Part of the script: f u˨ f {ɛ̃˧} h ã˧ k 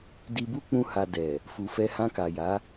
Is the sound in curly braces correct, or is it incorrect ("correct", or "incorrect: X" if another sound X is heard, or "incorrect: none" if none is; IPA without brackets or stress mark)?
incorrect: ɛ˧